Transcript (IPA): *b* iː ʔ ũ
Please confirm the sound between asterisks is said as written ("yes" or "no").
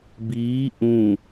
yes